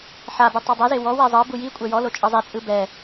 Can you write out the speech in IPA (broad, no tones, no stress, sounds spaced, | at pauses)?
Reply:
ħ a b ɯ tˤ ɤ dˤ e z e w ɔ w ɛ zˤ ɤ b u j i kʷʼ ɛ j ɔ l o t͡ʃʼ ɤ zˤ e t͡sʼ ɯ b ɛ